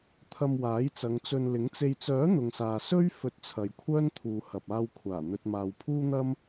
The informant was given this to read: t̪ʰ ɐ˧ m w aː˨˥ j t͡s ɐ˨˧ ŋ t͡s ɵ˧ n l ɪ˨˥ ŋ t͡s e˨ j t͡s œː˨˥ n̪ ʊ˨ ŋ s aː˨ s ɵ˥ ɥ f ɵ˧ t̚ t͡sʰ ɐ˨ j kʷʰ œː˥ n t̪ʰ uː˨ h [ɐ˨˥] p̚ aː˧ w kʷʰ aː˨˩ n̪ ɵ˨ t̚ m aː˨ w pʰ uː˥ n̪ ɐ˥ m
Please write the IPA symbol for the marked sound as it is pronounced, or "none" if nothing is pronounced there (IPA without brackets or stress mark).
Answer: ɐ˨